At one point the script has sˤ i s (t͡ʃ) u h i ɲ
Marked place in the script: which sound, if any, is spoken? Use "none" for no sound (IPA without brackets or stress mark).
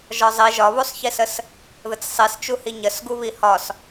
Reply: t͡ʃ